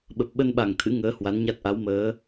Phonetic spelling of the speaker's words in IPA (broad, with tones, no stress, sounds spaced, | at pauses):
ɓ ə˨˩ p̚ ɓ ə˧ n ɓ a˨˩ ŋ t̪ʰ ɨ̰˧˥ ŋ əː˨˦ h w a˨˦ n ɲ a˦˥ t̚ ʔ a˨˦ w m əː˨˦